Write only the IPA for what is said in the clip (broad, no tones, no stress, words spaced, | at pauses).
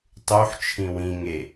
tˤuħ t͡ʃʰĩwĩ ŋe